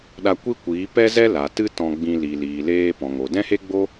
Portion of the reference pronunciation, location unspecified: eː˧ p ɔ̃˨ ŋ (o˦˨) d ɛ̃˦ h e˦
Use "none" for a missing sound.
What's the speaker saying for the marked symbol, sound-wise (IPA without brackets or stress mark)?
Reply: o˨